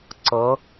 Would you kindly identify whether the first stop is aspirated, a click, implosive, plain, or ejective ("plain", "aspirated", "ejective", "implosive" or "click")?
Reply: click